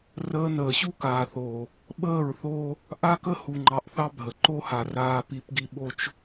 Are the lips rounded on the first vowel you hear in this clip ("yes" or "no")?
no